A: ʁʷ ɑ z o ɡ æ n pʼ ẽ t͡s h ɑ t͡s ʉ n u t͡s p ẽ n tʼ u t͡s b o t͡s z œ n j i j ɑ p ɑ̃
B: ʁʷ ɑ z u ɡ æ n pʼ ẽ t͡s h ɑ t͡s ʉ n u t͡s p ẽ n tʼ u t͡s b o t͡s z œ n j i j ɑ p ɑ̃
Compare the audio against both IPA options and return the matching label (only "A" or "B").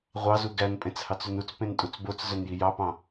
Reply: B